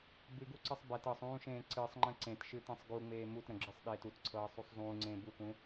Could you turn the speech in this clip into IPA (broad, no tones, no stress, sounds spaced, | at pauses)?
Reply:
b ɨ ɡ u ǀ ɨ sˤ b ɛ t ɤ sˤ ũː ʃ ẽː ǀ ɨ sˤ ŋ͡ǃ ə̃ ǀ ẽ t ʃ ɨ t ẽ sˤ ɡ u ŋ͡m eː m u t ɾ ə̃ ɡ͡ǁ ɨ sˤ ɗ eː t u t ǀʰ ɤː sˤ u sˤ zˤ ũː ŋ͡ǀ ẽː b u k ũ